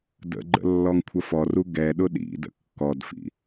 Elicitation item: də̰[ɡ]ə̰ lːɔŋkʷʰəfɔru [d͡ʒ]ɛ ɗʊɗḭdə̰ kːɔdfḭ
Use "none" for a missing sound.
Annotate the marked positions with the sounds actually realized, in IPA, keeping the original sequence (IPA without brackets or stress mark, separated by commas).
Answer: ɡ͡ǃ, ɡ